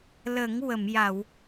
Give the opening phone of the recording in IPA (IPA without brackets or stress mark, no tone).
l